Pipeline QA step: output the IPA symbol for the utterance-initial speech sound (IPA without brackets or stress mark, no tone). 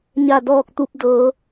ɲ